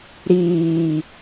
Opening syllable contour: low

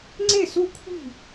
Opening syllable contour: falling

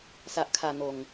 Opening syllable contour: low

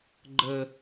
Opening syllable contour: high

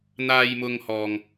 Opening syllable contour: low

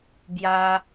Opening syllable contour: high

